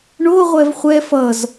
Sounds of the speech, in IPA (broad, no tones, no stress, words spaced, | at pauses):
ɳoʁʷɛv χʷɛ fʌz